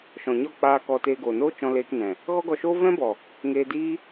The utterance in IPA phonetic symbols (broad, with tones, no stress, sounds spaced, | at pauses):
ʃ ɔ̃˨ ɲ ɔ˦˨ k͡p aː˧ k ɔ˧ t eː˧ ɡ oː˨ n oː˦ t͡ʃ ɔ̃˧ l eː˧ k n ɛ̃˨ | ɣ ɔ˦ ɡ ɔ˧ ʃ oː˦ v ɛ̃˦ b ɔ˨ | ŋ eː˧ d iː˦